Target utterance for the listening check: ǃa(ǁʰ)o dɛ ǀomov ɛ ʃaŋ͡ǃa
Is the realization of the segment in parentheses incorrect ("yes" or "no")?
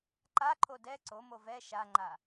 yes